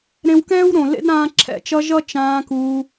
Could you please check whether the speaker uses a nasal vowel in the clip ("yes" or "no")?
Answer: yes